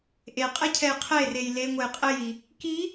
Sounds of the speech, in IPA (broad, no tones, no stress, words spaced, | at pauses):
ʔeqʼecʰɛj qʰerej leŋʷej qʼeji | ki